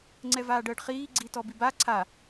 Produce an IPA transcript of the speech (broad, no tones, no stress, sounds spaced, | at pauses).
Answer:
ŋ͡ǀ ɛ v aː ɖ əː ɖ χ iː ɡ͡ǀ i t ɔ b i b a ǀʰ a